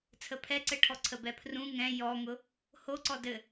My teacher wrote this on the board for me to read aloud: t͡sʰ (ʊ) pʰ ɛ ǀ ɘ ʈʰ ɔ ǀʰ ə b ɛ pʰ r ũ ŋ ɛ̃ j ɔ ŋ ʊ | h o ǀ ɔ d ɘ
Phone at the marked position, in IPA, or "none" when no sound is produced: ə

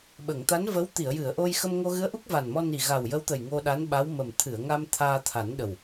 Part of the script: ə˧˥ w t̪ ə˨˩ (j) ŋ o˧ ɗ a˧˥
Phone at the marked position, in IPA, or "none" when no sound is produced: j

